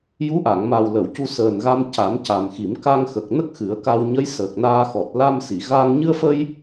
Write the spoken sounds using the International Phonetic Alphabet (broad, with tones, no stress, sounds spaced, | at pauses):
j u˧˥ ʔ a˨˩˨ ŋ m a˨˩ w l ə˨˩˨ w c u˧ s əː˨˩ n ɣ a˧ m c a˨˩˦ m c a˨˩ m x i˨˩˦ m k a˧ ŋ x ə˨˩ k̚ n ə˦˥ k̚ x ɨ˨˩˦ ə̯ k a˧ w ɲ ə˧˥ j s əː˨˩ k̚ n aː˧ x ɔ˨˩ t̚ l a˧ m s i˨˩˨ ɣ aː˧ ŋ ɲ ɨ˧ ə̯ f ə˧ j